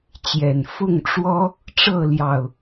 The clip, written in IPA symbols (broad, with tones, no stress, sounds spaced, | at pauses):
t͡ɕ j ɛ˨˩ n f ʊ˥˨ ŋ ʈ͡ʂ w ɔ˦ | ʈ͡ʂ ɤ˥˨ l j ɑ˨˩ ʊ̯